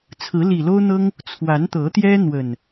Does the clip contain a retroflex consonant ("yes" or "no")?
no